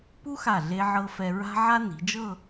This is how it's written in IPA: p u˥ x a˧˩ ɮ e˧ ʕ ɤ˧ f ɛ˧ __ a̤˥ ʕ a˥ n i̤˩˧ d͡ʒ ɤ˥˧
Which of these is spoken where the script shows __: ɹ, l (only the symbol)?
ɹ